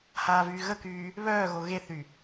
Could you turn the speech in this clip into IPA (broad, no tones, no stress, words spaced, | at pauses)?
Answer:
haːvyːɣəkyː | βœːɣo ɣeθy